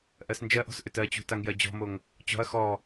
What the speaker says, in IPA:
ʔ ɜ s n d͡ʒ ɜ ʔ ɔ̤ s ʔ ʏ t ɜ t͡ɕ ṳ t a ŋ j ɜ d͡ʑ ɔ̤ m o ŋ | t͡ɕ ɔ̤ ɐ̯ x ɔ

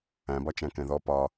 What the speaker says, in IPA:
æ̃ b ɒ t͡ʃ æ̃ k ɛ̃ ð ɔ p ɒ

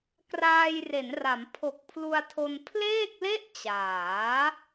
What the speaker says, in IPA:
k r aː˧ j r e˩˦ n r a˩˦ m pʰ o˨˩ k̚ pʰ l u˧ a̯ tʰ o˧ n pʰ l eː˥˩ k̚ l e˥˩ ʔ t͡ɕ aː˩˦

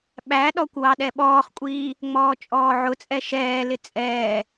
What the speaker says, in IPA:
ɓ æ ɗ ɔ kʷ w ɑ ɗ ɛ ɓ ɔː χ kʷʼ iː | ŋ͡m ɔː t͡ʃʼ ɔː ʕ ʊ t͡sʼ ɛ ʃ ɛː l ɪ t͡sʼ ɛː

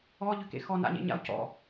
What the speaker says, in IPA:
ɔ ʎ ʏ k ḛ x ɔ n a̰ ɲ ḛ ɲ a̰ o̯ c ɔ̰

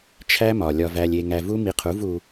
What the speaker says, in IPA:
t͡ʃʰ æ˦ m ɒ˨ lʲ ɒ˧ v æ˧ lʲ e˧ ŋ æ˧ v u˦ m i˧ qʰ u˨˦ v u˧

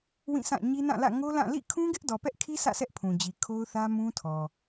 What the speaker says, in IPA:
w ĩ˦˨ s ã˦˨ ɲ i˦ n ã˦˨ l ä̰˦˨ ŋ o˦ l ã˦˨ l ḭ˦˨ kʰ ũ˦ ɡ ɪ˦ ʔ d ɔ˨ p ɛ˦ ʔ kʰ i˦ sʰ ä̰˦˨ sʰ ɛ˦ ʔ pʰ ũ˨ d͡ʑ i˨ kʰ o˦ ʊ̯ θ ä˦ m ũ˦ tʰ ɔ˨

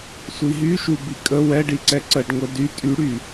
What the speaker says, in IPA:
sʷ i ɦ y ʃ u b i kʼ ə w ɛ ɖ i ǀ ɛ ǀ ə ɖ ŋʷ ɛ d y tʼ y ɽ y

